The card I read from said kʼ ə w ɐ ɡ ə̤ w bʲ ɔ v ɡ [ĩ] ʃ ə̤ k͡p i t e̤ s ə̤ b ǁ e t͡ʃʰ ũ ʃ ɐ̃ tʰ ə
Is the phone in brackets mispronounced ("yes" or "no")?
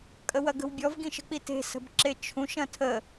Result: no